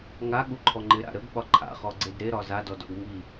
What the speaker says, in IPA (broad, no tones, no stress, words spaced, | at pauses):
ŋaɠuǃʰɔ ŋ͡ǃɪɾa̰ ɾəɡɓɒ ǃʰa̰χɔɡ͡ǀed ɾeɾɒ zadɔdɔ̰ɡ ŋi